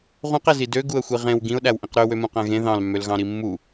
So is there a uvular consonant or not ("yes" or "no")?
yes